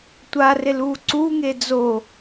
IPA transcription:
tʷ a r e l uː ǀ u ŋ e d͡z o

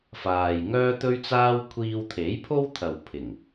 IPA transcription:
f aː˨ j ŋ œː˥ t̪ ɵ˥ ɥ t͡s aː˥ w kʷʰ iː˧ w t̪ʰ e˨˥ j pʰ o˥ w t̪ʰ ɐ˨ w pʰ ɪ˨˩ ŋ

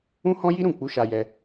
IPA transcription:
ũ˦ h ɔ̃˦ j i˦ ɾ ũ˦˨ k͡p u˨˦ ʃ a˧ j ɛ˧

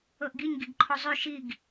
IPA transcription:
ɤ ʔ ɡ i ɲ ɡ i ɡ ǃʰ o zˤ y ʃ i ɡ

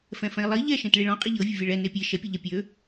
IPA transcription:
f ɛ̃ f ɛ̃ i̯ lˠ i ʎ ɛ ʃ ẽ t ɭ i ɭ ɔ̃ qʼ i ʎ ɤ vʲ ə vʲ ɛ ɭ ɛ n e pʲ e ʃ ɛ pʲ ə ʎ ɛ pʲ ø

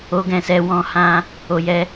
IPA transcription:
o˧ ɡ ɛ̃˨ s ɛ˧ w ɔ̃˦ h ã˦ | o˨ j ɛ˧

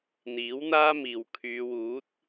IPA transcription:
n̪ iː˨˥ w n̪ aː˥ m iː˨ w kʰ yː˨˧ w uː˨˥ t̚

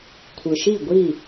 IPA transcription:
kʷʰ ɯ˨ ʃ i˦˨ ɡʷ i˦˨

